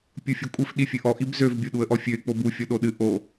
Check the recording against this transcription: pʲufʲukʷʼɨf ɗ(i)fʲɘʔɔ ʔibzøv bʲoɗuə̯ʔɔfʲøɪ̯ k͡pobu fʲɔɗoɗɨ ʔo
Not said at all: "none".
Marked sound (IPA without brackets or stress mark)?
i